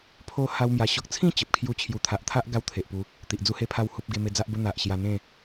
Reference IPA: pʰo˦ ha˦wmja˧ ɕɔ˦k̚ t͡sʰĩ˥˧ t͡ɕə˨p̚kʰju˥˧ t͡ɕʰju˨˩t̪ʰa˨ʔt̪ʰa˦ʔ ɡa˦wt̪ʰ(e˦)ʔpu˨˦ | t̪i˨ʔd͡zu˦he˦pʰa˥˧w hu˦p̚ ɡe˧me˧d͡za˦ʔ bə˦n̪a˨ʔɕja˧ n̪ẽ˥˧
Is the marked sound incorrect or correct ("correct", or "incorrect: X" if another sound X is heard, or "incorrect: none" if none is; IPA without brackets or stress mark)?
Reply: incorrect: e˨